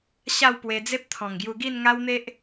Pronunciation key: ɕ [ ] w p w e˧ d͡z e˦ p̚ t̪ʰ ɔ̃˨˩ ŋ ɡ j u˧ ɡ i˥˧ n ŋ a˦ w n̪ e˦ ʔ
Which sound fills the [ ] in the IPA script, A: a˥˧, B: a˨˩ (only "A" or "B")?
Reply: A